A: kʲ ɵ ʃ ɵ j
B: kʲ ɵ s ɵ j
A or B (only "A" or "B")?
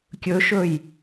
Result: A